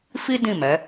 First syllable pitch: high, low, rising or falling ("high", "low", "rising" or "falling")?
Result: high